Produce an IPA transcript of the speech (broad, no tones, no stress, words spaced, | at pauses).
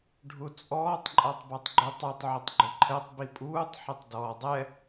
ɖʱut͡sʼɔːtˤ ǃʼatˤbɔtˤɡ͡ǃutˤutˤ ʕʏtˤɡ͡ǃʏǃʰɛtˤ bipʼuːtˤ ħətˤdɔːdˤɛ